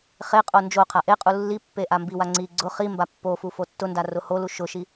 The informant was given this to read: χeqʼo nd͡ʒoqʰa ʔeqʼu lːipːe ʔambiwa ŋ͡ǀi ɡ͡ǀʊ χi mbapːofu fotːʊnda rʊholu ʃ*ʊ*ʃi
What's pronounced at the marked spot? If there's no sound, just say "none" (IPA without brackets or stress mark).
ʊ